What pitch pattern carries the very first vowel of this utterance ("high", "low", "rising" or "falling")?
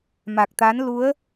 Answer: low